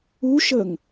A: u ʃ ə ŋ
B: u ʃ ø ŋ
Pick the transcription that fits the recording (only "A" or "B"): A